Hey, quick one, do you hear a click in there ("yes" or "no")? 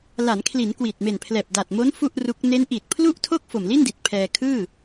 no